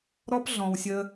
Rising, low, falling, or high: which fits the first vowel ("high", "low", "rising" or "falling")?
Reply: high